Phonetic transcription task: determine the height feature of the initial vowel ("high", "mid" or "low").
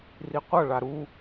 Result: high